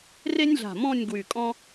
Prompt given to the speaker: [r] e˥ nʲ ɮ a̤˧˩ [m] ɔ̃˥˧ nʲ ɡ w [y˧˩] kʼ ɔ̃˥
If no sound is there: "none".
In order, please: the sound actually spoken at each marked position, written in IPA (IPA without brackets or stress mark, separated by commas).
r, m, y˧˩